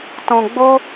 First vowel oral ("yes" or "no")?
no